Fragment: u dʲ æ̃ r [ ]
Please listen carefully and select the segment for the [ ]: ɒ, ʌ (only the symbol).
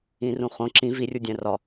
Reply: ɒ